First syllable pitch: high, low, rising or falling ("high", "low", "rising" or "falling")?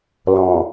low